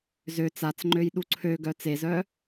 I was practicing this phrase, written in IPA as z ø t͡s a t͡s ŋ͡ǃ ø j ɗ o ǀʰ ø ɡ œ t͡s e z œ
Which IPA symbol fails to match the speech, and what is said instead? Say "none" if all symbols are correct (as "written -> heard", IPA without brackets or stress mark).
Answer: o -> u